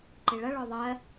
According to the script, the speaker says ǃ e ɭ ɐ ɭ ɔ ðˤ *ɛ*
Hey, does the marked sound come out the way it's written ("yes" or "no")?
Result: no